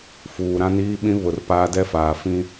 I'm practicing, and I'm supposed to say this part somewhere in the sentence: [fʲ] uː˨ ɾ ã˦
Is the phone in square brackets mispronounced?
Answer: yes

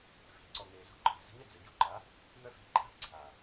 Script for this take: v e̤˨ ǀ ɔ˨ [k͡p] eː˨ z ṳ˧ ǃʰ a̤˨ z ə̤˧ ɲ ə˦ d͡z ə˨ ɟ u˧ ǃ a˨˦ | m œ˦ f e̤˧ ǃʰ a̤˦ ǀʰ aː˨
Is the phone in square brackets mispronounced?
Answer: yes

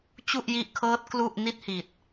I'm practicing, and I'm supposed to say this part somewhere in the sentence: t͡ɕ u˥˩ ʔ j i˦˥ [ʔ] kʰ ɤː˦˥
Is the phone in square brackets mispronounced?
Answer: no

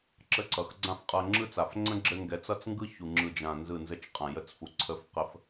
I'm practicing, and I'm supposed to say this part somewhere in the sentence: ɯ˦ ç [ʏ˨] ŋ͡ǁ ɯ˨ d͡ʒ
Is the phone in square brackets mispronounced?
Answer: yes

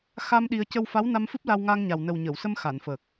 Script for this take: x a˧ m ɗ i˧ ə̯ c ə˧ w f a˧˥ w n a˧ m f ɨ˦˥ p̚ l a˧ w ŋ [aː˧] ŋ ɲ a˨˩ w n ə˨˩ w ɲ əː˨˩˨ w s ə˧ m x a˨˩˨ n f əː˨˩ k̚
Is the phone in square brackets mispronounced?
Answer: no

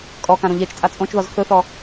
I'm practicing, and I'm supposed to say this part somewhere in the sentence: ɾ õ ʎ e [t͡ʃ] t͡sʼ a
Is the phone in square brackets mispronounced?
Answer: no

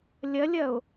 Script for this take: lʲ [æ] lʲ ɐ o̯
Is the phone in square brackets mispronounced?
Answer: yes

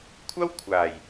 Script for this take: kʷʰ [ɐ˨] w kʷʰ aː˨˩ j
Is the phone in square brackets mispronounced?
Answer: yes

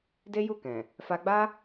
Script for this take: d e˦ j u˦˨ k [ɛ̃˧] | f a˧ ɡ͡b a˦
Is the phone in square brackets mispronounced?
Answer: yes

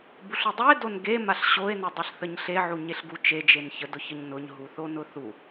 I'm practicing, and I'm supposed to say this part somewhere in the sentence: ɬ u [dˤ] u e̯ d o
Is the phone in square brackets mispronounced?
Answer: no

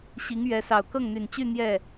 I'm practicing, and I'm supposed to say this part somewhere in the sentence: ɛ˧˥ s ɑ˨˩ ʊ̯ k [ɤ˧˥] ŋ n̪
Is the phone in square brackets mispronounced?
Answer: yes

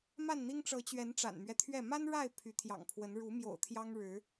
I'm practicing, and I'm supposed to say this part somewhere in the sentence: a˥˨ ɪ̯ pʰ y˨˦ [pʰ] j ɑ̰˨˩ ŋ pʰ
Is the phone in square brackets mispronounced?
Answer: yes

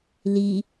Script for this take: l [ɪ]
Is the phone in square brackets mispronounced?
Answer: yes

